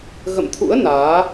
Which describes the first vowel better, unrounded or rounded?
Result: unrounded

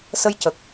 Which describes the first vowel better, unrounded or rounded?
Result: unrounded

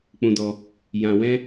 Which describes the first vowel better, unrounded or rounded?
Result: rounded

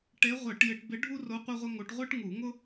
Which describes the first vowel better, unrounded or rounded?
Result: unrounded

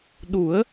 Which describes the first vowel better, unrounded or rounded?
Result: rounded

